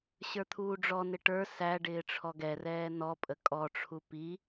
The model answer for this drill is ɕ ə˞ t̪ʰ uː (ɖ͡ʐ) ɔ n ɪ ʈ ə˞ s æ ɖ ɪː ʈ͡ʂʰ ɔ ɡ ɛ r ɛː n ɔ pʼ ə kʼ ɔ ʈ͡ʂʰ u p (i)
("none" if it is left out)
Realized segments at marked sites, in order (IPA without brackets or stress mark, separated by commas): ɖ͡ʐ, i